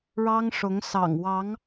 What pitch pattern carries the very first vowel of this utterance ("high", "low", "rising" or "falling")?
high